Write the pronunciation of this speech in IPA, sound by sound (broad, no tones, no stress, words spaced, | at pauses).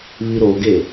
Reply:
βiɾoɡe